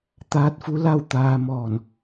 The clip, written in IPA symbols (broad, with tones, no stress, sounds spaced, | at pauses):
t̪ aː˧˥ t̚ f u˧˥ l a˥˨ w t̪ aː˧ m ɔː˧˩ n